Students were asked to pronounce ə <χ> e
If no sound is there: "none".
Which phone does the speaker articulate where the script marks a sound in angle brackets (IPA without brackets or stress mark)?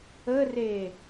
r